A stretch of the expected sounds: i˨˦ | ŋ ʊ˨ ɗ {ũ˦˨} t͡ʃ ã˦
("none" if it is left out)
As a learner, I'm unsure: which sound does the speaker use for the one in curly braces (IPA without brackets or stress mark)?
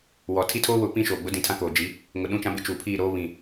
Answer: ũ˦˨